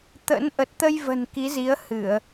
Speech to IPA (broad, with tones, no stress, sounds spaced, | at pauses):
t̪ ə̰˧˥ n ʔ ə˨˩ t̚ t̪ ə˧ j v ə̤˨˩ n k i˨˦ z i˨˦ ə̯ h ɨ˧˩˨ ə̯